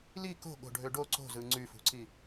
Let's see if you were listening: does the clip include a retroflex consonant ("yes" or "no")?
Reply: yes